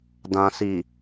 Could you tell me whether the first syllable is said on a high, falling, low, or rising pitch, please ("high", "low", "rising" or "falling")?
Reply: low